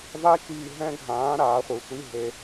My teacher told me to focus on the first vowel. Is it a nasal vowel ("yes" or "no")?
no